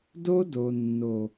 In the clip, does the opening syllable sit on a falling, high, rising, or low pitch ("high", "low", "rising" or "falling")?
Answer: high